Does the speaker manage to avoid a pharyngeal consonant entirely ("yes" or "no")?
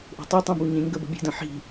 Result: no